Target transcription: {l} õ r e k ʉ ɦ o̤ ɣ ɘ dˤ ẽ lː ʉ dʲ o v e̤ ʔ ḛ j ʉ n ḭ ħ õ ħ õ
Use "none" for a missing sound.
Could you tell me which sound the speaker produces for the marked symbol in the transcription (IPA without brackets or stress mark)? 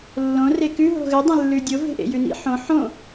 lː